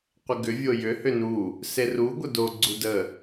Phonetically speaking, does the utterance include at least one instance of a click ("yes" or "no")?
yes